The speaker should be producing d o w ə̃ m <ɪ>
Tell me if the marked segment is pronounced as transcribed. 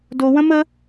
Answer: no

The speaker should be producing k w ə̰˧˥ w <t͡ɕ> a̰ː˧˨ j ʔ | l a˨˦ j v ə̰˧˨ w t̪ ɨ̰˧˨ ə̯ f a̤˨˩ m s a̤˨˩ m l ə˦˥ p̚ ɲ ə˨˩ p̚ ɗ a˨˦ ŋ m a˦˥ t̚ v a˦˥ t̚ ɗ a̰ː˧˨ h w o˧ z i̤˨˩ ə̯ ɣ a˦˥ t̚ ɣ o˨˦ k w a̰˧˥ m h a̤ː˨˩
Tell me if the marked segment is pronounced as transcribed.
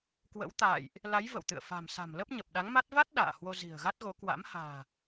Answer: no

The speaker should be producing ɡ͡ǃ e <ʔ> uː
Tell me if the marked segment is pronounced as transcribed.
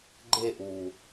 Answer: yes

